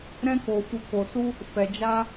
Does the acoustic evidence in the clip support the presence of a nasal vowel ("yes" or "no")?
yes